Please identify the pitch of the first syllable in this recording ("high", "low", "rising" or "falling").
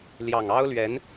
low